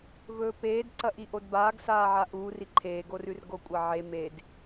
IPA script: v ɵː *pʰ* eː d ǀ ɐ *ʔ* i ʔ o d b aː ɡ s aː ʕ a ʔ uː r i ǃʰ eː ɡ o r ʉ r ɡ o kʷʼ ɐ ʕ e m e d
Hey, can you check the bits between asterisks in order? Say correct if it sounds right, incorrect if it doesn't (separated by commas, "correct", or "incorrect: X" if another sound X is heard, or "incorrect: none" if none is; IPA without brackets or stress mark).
incorrect: p, correct